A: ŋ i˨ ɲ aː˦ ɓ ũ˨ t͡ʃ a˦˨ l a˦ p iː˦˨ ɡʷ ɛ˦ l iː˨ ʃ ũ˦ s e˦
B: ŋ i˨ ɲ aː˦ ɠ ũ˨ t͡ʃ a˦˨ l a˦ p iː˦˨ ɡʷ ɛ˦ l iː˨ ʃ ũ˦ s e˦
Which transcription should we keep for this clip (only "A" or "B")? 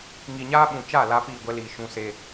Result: A